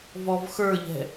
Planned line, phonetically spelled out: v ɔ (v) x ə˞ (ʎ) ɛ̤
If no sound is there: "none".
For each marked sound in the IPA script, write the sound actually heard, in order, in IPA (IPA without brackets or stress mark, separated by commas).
v, ʎ